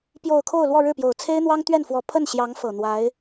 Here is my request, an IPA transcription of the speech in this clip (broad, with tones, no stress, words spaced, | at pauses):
pjo˨˩ʊ̯ kʰo˥˧ʊ̯lwɔ˥˧ɻɻ̩˥˩pjo˨˩ʊ̯ t͡sʰe˥ɪ̯n̪wɑ˥ŋt̪ɥɛ˥˩nfwɔ˧˥ pʰə˥˩nɕjɑ˧˥ŋ fɤ˨˩ n̪wa˧˥ɪ̯